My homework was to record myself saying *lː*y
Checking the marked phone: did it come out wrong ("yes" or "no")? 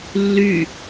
no